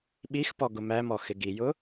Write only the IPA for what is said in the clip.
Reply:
ɓixpɔ ɡʊmæmɔ xɪɡijʊ

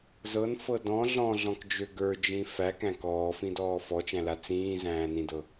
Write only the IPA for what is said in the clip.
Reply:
zɤnfɤ dɔ̃ ɮɔ̃ɮɔ̃kd͡ʒø ɡə˞d͡ʒĩ fækæ̃ kɔːfĩdɔː fɔt͡ʃæ̃la t͡sĩːzæ̃ːnĩdɤ

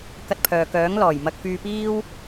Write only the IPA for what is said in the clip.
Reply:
kɐ˧t̚pʰœː˨ kœː˨˥ŋ lɔː˨˩jmɐ˧k̚ fyː˧piː˥w

